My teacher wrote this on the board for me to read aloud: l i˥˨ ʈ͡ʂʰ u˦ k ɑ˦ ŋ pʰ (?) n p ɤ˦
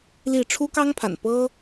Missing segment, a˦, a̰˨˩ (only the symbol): a̰˨˩